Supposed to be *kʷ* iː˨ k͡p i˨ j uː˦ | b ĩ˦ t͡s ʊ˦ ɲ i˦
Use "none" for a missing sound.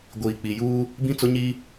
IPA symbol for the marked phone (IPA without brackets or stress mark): ɡʷ